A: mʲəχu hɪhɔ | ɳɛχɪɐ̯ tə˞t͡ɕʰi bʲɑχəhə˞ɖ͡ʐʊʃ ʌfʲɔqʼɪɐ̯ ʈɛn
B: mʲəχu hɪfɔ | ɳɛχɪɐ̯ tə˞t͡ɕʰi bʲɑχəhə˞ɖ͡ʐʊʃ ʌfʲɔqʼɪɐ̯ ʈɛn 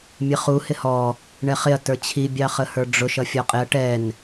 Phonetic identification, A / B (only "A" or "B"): A